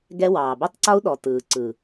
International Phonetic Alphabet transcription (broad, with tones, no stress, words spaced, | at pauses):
ɡɛ˦wɑː˨ bø˦tˤǀɒ˦u̯ ɗɔ˨ tɯː˨ ǀɯ˨